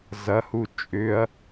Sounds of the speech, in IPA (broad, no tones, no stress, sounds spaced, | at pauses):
z ɐ h u t͡ʃʼ ʏ ɐ̯